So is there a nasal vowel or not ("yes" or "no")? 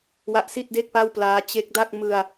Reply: no